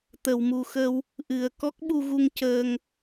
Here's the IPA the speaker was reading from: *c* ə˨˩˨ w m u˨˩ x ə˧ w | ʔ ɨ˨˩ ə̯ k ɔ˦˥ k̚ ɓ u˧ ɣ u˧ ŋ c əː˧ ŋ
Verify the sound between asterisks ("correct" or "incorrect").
incorrect